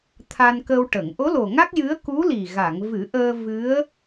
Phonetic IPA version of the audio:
t̪ʰa˧nkə˧wʈə˨˩˨ŋ ʔo˧˥lo˨˩ŋa˦˥k̚ jɨ˧˥ə̯ku˧˥li˨˩ ɣa˨˩˨ŋvɨ˨˩˦ʔəː˧ vɨ˧˥ə̯

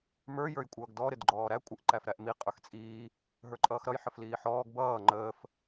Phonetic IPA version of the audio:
mə˞ jə˞jkʷʼʌːɡdɔ ɾɪdɡ͡ǃɔːɾæ kʷʼɪʔ ǃæfɾæʔmi qʼə˞xt͡sʼiː | ɦə˞ǃʼʌːxɾʌj ħəfliːħɔːɡ bʌː ŋ͡ǃəːf

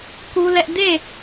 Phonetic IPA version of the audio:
ku˦lɛ˦ʔ de˦˨

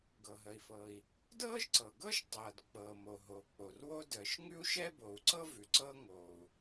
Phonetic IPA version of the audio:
ɡɤ˩ɦə˩i̯fɤː˩i̯ | dɤː˥ʒǀɤ˩ɡɤː˥ʃ tˤɤː˩dk͡pɤː˩mo˩ ɦo˩k͡po˩rwo˥ dəː˩ʃŋʉ˥u̯ʃɛ˥bo˩u̯ ǀɤ˥vʉ˩ ǀɤ˥ ŋoː˩u̯

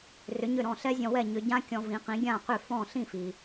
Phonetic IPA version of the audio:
rʏ˩˥ɲʏ˥˩ɾɔ̃˥˩ ɬɛ˥zʲɔ̃˧wɛ˥˩ ɲʏ˧ɟã˥ kʲɔ̃˧vĩ˩˥qĩ˩˥ ɡʲã˥˩qʏ˥˩ fɔ̃˥˩ ɬĩ˥˩fi˩

